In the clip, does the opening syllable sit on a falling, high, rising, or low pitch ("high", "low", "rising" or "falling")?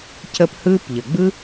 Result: high